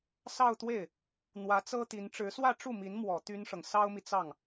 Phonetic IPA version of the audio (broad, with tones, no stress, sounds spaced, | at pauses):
s ɑ˥˧ ʊ̯ t̪ w e˥˩ ɪ̯ | n̪ w ä˧˥ t͡s ɤ˥ t̪ i˧˥ n ʈ͡ʂ ɻ̩˧˥ s w ä˥˧ ʈ͡ʂ u˥˩ m i˧˥ n m w ɔ˨˩ t̪ y˥ n ʂ ɤ˨ ŋ s ɑ˥ ʊ̯ m i˨ t͡s ɑ˥˩ ŋ